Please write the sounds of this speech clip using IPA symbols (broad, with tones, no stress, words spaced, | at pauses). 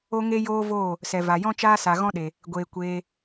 o˦ŋe˦ joː˦voː˦˨ | sɛ˨va˨jɔ̃˦ t͡ʃaː˦sa˨ɣɔ̃˦ɗe˨ | ɡʷeː˨ kʷeː˧